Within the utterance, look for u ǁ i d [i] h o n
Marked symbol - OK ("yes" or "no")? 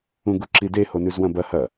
no